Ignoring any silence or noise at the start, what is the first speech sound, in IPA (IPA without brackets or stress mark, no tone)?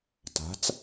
t